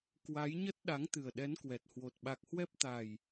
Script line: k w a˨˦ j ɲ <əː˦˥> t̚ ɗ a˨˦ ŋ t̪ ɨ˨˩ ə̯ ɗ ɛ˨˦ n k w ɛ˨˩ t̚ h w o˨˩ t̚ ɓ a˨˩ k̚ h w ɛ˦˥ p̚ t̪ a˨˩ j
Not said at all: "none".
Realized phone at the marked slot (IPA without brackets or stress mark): ə˦˥